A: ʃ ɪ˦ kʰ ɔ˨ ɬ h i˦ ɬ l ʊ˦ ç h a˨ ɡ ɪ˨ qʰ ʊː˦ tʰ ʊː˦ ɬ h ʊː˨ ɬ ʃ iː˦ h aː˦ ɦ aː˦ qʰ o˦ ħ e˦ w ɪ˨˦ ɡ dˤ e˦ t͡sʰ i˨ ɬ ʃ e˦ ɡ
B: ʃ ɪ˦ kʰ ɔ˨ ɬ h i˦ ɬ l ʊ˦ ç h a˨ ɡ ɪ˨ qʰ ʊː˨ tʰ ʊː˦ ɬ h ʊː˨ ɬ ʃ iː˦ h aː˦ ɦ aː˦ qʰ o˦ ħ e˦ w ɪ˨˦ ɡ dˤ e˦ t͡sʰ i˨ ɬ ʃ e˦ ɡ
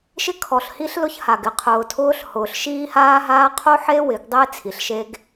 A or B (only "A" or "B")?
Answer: B